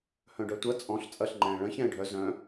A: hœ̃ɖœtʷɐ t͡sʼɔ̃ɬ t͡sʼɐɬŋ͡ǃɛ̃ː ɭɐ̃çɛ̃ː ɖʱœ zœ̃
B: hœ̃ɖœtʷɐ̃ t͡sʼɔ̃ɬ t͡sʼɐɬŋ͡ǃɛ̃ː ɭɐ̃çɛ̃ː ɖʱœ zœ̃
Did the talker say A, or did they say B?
A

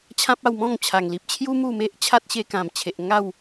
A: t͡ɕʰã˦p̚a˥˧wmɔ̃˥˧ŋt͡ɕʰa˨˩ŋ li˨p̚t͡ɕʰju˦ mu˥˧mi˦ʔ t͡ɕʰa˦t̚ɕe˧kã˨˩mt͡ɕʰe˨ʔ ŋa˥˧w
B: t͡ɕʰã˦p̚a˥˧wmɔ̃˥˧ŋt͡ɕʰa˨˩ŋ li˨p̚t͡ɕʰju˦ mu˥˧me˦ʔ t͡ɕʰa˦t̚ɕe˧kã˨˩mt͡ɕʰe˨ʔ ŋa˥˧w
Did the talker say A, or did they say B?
B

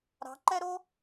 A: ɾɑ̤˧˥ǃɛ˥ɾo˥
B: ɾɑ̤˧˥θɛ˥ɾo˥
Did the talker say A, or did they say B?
A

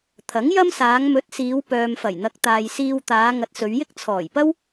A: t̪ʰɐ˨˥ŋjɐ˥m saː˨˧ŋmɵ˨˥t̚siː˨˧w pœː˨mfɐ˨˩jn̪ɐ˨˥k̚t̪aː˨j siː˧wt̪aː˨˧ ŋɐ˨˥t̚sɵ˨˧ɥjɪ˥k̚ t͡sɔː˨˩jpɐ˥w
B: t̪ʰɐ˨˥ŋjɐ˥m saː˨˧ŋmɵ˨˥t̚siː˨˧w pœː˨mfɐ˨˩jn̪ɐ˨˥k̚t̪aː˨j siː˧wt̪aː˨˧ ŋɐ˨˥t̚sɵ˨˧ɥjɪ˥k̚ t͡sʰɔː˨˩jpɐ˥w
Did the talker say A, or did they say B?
B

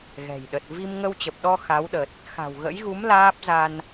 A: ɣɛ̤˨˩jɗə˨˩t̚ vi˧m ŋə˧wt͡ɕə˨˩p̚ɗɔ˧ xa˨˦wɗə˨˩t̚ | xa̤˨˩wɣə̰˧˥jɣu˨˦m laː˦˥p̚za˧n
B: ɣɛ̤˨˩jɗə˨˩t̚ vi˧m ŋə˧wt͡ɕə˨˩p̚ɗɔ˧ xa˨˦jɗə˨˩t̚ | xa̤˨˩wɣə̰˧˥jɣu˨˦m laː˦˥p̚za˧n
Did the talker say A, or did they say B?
A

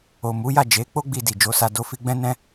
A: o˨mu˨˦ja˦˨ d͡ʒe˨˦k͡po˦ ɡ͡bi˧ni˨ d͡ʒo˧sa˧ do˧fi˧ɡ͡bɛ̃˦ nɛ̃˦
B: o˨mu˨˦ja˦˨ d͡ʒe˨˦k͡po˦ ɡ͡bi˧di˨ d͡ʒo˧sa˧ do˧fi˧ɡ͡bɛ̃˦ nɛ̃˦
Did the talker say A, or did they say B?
B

